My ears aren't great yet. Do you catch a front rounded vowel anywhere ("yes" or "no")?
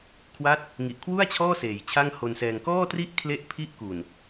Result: no